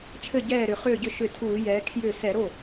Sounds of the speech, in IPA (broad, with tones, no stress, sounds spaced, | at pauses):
t͡ʃʰ ɘ˥˩ ɟ ɛː˥˩ ɾ ʏ˧˩˧ χ ʏː˥˩ ɟ ʏ˥˩ ʃ ʏ˧˩˧ tʰ uː˧˩˧ j ɛː˨˥ kʰ j ʏː˥˩ s ɛ˧˩˧ ɾ o˥˩